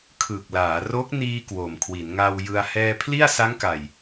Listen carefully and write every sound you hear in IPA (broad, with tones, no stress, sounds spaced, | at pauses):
kʰ ɯː˨˩ k̚ l aː˩˦ r o˦˥ k̚ n iː˧ k w o˨˩ m kʰ w i˩˦ n ŋ a˧ w j ɯ˧ a̯ h ɛː˧ pʰ l i˥˩ a̯ s a˦˥ ŋ k a˨˩ j